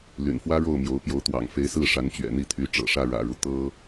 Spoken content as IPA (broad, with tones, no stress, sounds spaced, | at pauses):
l y̰˨˩ n f w ä˥ ɻ o˥˩ ʊ̯ m j o˧˥ ʊ̯ p j o˧˥ ʊ̯ t̪ w ɑ̰˨˩ ŋ f e˧˥ ɪ̯ s ɹ̩˥˩ ʂ a˧˥ n t͡ɕ ɥ ɛ̰˨˩ n̪ i˥˩ t̪ʰ y˧˥ ʈ͡ʂ ɤ̰˨˩ ʂ ä˥˩ ɻ ä̰˨˩ ɻ u˦ t̪ ɤ˥